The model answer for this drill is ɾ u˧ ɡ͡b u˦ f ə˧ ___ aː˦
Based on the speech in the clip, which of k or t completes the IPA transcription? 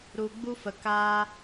k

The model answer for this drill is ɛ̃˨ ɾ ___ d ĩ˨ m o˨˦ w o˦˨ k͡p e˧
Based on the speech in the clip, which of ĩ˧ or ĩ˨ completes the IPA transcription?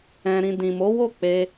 ĩ˨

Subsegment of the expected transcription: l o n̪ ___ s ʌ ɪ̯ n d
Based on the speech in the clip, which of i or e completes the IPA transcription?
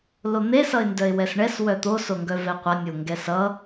e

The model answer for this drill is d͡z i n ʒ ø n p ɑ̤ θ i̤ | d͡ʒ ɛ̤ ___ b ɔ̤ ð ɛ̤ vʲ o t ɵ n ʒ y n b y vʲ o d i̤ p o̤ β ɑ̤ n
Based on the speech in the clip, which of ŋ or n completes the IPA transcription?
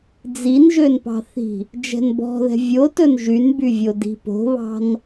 n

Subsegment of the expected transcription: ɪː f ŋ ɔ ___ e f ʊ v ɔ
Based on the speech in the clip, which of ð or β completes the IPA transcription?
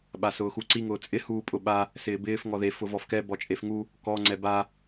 ð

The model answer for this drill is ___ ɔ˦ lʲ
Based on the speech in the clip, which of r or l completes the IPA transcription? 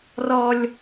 r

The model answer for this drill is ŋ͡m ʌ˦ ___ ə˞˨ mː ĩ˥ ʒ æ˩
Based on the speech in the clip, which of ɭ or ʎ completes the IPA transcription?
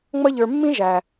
ʎ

